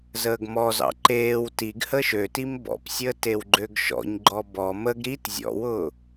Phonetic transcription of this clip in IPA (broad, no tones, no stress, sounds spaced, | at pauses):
z əː ɡ m ɔ z ɑ̰ ǃ eː w t i ɡ h əː ʃ ø t i m b ɔ̰ p sʲ əː t e w ɡ͡ǃ ø ɡ ʃ ɔ̰ ɲ ɡ͡ǃ ɔ b ɔ m ə ɡ ɾ i t zʲ ɔ̰ w ʊː